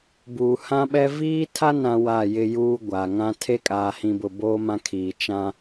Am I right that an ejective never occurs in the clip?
no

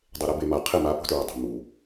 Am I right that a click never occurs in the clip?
yes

